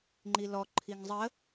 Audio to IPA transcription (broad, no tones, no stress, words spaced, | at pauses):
ŋ͡ǃilɔǃʰiŋ zˤə